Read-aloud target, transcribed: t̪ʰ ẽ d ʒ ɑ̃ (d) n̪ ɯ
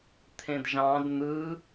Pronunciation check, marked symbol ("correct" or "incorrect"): correct